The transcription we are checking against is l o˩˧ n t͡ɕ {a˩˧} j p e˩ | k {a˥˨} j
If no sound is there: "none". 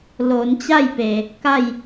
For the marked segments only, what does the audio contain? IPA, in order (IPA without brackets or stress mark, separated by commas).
a˥˨, a˥˨